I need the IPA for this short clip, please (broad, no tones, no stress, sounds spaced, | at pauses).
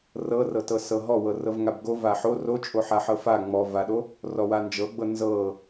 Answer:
r ɤ r ɤ t ɤ s ɤ ɦ ɔ w ɤ r ɤ v ŋ a b ɡ o v a ħ o r o t͡ʃʼ o ħ a ħ ɤ f a ŋ͡m ɔ v a ɗ o | r ɔ w a n d͡ʒ ɤ ɡ͡b ɤ n z ɤ